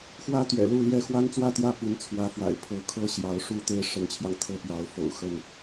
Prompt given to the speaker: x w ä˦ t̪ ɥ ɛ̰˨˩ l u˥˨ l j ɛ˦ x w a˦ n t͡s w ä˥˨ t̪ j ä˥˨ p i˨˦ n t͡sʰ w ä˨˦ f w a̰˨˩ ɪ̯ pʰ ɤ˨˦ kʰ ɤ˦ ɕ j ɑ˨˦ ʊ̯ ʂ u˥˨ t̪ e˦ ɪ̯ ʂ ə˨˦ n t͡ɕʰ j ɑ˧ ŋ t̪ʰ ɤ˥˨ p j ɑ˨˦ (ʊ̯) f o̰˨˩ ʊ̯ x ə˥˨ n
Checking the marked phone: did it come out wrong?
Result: no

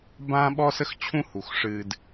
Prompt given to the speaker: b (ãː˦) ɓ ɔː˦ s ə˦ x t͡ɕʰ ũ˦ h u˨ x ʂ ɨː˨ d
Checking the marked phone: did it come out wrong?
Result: no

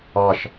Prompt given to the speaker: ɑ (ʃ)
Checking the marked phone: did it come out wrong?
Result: no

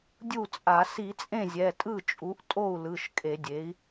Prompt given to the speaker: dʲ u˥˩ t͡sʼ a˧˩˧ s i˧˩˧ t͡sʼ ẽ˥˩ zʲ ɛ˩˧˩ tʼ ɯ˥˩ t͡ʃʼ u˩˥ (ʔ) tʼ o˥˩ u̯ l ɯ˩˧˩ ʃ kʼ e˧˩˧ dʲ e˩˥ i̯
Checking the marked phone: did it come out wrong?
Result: no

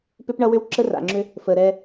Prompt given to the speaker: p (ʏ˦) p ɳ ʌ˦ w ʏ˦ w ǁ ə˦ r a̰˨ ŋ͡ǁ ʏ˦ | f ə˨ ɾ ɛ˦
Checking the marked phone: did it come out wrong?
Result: no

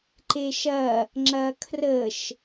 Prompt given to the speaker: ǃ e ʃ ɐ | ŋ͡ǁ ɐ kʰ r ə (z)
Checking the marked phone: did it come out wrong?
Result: yes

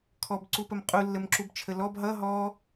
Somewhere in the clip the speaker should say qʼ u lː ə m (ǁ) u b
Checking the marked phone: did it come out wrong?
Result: no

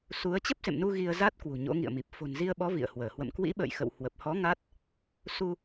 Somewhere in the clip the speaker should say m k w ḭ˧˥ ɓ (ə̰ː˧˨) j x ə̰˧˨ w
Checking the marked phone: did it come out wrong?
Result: no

